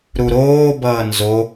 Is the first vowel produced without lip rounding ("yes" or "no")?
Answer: no